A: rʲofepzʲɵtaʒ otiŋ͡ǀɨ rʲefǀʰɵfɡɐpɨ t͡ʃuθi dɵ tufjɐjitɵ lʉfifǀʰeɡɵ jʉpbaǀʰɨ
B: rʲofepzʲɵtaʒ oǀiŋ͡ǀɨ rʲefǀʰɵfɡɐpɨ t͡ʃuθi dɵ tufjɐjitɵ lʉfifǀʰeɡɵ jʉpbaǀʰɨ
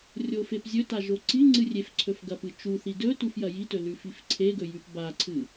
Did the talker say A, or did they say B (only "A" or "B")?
B